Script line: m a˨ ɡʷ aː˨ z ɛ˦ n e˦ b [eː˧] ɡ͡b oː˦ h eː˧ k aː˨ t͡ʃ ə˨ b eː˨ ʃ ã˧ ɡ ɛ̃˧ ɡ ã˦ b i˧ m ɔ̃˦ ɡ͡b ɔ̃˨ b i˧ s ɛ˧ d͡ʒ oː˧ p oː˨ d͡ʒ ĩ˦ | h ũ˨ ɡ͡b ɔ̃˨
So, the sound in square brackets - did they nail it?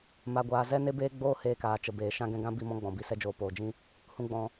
no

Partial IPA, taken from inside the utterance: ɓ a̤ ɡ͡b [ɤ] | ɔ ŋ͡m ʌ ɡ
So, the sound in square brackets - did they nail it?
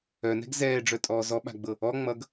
yes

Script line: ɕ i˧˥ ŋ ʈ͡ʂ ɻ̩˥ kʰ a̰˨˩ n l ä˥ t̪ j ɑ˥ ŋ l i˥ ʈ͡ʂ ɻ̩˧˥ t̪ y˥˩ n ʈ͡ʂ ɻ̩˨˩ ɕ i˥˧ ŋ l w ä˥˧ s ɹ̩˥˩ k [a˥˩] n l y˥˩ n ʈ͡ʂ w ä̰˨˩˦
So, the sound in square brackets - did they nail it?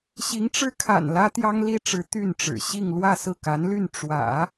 no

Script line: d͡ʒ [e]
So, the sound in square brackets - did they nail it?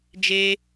yes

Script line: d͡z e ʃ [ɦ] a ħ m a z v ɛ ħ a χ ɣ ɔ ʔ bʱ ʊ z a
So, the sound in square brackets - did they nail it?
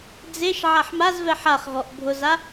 no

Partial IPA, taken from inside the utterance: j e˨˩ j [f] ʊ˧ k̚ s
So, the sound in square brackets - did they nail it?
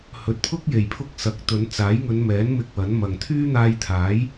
no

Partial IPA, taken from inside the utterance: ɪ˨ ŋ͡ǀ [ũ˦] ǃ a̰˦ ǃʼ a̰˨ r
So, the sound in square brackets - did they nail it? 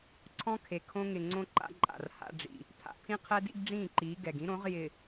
no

